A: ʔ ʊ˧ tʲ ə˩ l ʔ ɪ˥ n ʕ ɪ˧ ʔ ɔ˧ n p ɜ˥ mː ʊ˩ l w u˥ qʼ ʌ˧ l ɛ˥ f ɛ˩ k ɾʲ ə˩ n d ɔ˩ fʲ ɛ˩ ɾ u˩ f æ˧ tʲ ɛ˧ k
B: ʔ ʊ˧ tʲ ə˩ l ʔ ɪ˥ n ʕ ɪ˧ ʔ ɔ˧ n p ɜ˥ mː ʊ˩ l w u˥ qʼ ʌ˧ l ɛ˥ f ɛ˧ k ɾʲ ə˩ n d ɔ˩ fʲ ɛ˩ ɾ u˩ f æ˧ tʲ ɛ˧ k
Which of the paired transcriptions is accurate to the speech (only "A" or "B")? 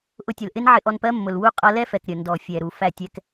A